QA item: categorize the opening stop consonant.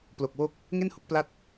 plain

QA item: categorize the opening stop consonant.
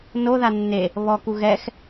plain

